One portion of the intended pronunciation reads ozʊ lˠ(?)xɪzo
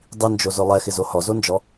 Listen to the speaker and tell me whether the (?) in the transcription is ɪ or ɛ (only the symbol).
ɛ